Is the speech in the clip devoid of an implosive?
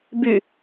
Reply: yes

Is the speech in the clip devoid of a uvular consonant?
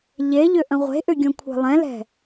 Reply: no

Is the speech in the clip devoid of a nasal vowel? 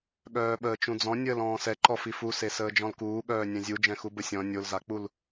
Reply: no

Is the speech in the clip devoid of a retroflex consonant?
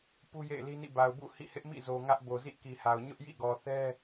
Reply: yes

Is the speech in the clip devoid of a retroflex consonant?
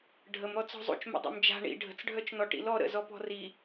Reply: no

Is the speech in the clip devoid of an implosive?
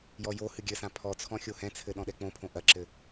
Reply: no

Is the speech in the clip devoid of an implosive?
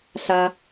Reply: yes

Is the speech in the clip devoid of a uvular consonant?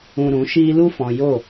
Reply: yes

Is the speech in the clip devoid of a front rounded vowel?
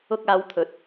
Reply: yes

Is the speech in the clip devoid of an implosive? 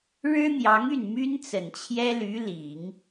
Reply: yes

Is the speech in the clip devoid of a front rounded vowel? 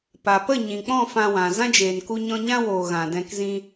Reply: yes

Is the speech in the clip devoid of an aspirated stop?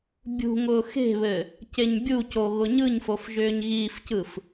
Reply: yes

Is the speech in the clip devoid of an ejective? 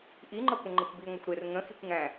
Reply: yes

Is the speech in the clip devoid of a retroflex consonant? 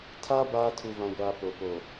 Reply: yes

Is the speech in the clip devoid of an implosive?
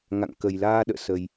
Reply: no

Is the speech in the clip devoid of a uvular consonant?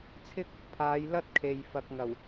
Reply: yes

